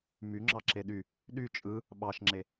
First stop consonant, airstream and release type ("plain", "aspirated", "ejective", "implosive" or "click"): click